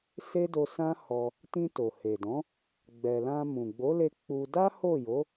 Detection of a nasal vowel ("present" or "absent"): present